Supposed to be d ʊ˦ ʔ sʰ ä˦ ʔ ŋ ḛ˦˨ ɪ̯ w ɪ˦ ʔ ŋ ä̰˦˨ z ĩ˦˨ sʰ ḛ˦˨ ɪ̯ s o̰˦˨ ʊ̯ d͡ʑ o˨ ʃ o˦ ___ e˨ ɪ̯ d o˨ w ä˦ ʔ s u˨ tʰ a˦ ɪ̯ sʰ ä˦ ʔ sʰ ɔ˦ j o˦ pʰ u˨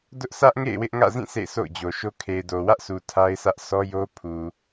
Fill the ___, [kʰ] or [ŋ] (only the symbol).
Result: kʰ